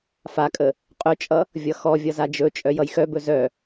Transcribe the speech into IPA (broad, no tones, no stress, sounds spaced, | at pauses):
f a kʼ ə | qʼ ɵ t͡ʃʼ ʌ | vʲ ʌ x ɔ vʲ ʌ z a d͡ʒ ɵ t͡ʃʼ œ j ʌ j x œ b ɵ z œ